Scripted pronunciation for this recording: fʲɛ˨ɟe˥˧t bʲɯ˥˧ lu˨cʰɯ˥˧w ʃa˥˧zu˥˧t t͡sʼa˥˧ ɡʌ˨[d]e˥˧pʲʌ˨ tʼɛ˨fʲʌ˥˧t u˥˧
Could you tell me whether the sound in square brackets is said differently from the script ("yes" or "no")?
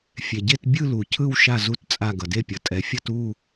no